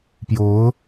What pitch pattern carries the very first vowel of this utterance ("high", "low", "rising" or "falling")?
rising